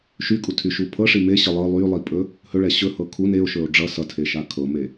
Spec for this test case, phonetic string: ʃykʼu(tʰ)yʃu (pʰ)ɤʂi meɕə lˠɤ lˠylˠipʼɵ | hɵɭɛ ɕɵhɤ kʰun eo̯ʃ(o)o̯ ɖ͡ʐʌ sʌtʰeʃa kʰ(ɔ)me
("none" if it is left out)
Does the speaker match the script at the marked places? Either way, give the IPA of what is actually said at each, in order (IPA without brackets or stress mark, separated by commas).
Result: tʰ, pʰ, ɵ, ɤ